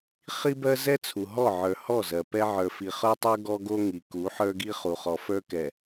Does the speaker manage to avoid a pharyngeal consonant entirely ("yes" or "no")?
no